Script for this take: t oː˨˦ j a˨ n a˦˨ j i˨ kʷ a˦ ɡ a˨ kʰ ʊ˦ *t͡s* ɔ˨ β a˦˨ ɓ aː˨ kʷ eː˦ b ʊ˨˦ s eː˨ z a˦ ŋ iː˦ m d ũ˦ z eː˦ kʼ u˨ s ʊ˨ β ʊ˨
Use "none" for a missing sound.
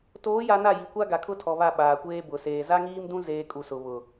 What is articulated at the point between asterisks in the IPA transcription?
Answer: tʰ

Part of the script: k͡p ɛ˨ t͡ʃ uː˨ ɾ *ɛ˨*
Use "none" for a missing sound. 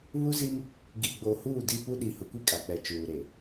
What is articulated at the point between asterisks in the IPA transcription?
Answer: e˨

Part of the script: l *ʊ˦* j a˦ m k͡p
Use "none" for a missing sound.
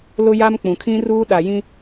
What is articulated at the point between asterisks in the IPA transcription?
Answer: ʊ˦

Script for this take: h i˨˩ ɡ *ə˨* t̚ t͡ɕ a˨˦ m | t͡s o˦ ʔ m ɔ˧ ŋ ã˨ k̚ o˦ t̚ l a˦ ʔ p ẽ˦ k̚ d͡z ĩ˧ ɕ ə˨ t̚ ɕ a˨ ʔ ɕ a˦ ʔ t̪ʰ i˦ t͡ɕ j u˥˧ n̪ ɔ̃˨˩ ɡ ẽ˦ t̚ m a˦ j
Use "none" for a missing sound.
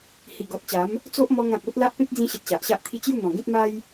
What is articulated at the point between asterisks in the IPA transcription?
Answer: ɔ˨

